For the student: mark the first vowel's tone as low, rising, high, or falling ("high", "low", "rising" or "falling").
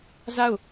falling